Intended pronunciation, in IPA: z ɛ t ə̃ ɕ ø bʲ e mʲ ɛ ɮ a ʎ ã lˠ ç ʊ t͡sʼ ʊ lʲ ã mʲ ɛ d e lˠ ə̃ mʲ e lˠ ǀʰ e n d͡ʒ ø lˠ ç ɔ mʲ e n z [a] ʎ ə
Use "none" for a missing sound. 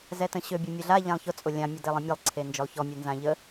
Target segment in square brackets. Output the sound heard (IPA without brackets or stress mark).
ã